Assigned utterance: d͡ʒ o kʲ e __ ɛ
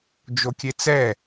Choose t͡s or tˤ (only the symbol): t͡s